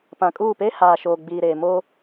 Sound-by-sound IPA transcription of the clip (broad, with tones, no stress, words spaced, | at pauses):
pã˨kʼuː˦˨ pe˦ haː˨ʃoː˨ ɡ͡biː˨ɾeː˨ mo˦